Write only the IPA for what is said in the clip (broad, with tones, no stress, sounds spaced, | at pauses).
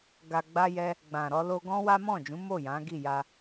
ɡ a˧ ɡ͡b a˦ j ɛ˦ | ɡ͡b ã˨ ɾ ɔ˧ l o˦ ɡ ɔ̃˦ w a˦ m ɔ̃˦˨ d͡ʒ ũ˨˦ m o˦˨ j ã˨˦ ɡ i˦˨ j a˧